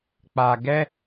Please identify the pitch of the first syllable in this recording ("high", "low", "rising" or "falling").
low